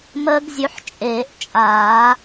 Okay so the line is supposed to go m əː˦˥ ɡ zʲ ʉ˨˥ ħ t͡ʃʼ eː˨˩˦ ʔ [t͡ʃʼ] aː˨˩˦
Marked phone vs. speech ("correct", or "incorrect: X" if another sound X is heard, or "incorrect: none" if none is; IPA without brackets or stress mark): correct